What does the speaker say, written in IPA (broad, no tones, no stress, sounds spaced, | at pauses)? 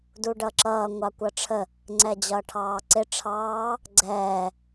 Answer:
d u ɖ ʌ ǁ ʌː ŋʷ ɑ kʷ ʌ ʈ͡ʂʰ ə | ŋ͡ǀ ɛ d͡ʑ ʌː ʈʰ ɑː ǀ ɪ ʈ͡ʂʰ ɑː | ɡ͡ǀ ɛː